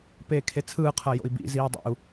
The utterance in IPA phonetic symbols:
peːkʰet͡sʰɯːqʰɤ jo̰i̯bḭziːu̯ dˤḭu̯

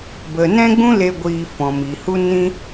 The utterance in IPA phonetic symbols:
bə˨ nɛ̃˦ɡ͡bũ˦ le˧ ɡʷiː˧fɔ̃˨mi˨ hu˦nĩ˦

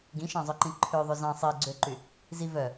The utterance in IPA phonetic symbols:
ɡĩʃɑ̃zˤœǃĩ ǃʰøðˤʉ zɑ̃ sˤiɡ͡ǀøǃy | zi vœ

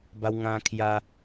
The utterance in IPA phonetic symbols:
ba˧wŋã˧ kʰja˧

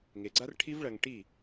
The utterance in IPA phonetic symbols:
ŋe˨ɡ͡ǀa˦rʈʰi˦v ɭɐ˧ŋʈi˦˨

